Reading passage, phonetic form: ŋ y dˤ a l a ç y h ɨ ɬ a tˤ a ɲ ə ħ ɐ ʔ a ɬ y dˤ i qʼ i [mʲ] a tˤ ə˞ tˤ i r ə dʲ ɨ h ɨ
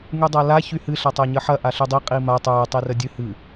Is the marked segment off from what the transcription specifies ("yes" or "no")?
yes